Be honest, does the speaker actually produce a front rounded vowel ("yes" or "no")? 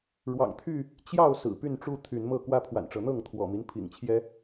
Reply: yes